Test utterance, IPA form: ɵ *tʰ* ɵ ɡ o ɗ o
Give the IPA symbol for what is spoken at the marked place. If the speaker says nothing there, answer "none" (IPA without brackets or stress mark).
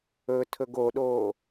tʰ